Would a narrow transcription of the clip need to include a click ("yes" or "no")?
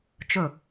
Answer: no